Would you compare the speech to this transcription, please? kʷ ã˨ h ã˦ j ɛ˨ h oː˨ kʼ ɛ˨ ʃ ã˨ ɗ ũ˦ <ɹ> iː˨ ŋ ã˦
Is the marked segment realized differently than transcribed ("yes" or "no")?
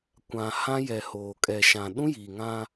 yes